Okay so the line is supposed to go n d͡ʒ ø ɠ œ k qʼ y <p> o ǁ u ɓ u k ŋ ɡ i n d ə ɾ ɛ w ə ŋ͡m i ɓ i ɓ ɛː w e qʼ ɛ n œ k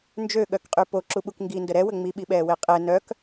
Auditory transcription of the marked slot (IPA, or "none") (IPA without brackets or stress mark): p